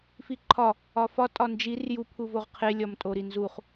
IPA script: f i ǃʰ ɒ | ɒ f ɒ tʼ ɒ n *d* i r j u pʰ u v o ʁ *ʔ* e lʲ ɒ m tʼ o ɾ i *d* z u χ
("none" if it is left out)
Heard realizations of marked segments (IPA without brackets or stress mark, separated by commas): d͡ʒ, qʰ, n